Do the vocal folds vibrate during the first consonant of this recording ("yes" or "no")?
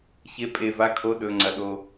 no